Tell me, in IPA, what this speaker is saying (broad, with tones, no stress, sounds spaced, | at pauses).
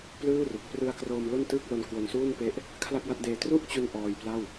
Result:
p l ɯː˥˩ r u˨˩ k̚ p r ɯ˧ a̯ k r oː˧ m l o˥˩ n t ɯː˥˩ k̚ l o˧ n k w o˧ n s uː˥˩ n p e˦˥ ʔ | kʰ l a˥˩ k̚ w a˦˥ t̚ d eː˧ t r u˥˩ ʔ t͡ɕ u˧ n ʔ ɔː˧ j p l a˥˩ w